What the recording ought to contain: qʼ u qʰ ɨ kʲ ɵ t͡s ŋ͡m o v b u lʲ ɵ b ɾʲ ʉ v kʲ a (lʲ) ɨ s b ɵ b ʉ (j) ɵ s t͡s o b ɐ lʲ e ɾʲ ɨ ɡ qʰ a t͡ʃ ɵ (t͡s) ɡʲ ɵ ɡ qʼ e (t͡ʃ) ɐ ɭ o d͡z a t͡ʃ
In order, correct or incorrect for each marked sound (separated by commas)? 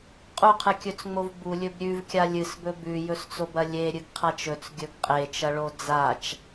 correct, correct, correct, correct